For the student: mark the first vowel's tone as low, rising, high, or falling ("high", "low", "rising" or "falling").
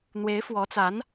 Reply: rising